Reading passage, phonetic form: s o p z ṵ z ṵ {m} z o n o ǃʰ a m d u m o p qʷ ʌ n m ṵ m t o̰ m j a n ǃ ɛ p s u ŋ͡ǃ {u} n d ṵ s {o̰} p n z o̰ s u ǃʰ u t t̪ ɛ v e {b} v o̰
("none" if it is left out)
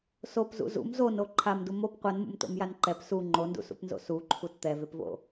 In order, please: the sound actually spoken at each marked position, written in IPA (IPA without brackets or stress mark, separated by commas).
m, o, ṵ, p